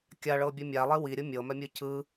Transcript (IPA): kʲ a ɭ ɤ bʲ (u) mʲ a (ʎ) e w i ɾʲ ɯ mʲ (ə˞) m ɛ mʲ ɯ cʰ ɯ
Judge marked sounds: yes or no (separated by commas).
no, no, no